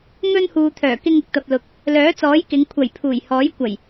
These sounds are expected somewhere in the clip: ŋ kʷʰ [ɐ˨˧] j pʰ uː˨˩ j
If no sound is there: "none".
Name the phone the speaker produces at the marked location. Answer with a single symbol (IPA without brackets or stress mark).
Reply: ɐ˨˩